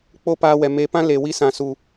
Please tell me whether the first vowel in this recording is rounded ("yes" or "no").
yes